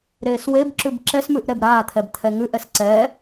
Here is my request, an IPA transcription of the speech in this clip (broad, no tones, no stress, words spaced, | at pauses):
ɾeːswebǁʉb ǁɛsmʉʔ ɾɛbɾaːt̪ʰɛb t̪ʰɛŋʉʔɛs ǀɛ